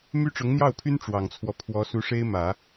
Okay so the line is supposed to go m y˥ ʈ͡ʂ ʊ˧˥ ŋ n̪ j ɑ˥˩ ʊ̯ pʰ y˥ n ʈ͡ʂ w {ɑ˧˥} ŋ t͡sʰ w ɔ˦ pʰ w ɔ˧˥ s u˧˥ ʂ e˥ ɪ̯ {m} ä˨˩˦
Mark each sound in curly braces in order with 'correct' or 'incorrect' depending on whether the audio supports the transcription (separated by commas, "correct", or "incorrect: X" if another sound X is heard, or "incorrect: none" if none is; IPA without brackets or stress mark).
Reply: incorrect: ɑ˨˩, correct